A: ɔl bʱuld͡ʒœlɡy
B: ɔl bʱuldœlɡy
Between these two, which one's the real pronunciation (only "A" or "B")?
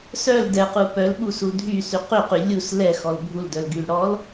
B